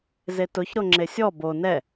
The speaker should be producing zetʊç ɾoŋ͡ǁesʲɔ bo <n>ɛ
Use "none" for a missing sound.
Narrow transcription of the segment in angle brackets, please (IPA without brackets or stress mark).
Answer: n